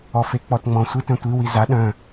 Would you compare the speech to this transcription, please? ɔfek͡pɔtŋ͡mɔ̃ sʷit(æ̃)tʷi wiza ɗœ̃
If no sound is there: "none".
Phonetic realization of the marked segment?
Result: œ̃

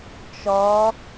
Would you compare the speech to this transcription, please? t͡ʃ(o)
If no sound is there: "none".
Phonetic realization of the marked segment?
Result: ɔ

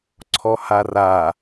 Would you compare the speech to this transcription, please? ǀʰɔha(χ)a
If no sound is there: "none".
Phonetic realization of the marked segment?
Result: r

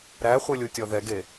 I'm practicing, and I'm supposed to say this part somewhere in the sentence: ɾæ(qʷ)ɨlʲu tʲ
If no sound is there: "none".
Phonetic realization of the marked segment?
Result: χʷ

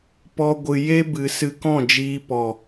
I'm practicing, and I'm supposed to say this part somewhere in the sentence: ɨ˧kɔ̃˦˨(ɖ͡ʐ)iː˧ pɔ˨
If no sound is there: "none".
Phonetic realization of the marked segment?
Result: d͡ʒ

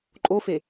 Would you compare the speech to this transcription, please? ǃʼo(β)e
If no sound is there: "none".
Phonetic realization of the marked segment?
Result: f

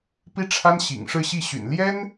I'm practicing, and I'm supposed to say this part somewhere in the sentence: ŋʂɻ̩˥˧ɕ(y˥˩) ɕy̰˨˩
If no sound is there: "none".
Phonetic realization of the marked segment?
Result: i˥˩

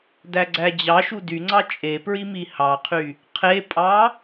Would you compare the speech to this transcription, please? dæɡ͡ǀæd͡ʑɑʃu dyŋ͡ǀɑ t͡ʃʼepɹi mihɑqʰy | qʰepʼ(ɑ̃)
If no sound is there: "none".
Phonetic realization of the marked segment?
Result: ɑ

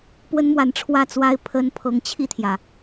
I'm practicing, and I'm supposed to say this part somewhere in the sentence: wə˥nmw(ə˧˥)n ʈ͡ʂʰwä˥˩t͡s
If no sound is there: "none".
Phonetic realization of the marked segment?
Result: a˧˥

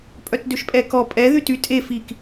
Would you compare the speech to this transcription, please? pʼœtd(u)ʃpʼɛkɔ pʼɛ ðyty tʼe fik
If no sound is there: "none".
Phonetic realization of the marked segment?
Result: ø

